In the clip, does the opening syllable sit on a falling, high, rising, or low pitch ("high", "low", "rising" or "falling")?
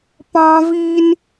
high